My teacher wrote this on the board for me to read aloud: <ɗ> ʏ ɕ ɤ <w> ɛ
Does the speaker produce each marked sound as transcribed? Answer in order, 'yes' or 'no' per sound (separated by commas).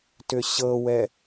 no, yes